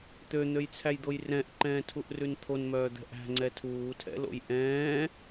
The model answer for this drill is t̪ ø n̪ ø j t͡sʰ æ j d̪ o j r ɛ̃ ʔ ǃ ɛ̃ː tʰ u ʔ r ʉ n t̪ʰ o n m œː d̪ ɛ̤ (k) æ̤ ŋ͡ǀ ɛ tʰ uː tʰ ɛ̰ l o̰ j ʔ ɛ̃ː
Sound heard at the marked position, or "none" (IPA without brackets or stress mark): ʔ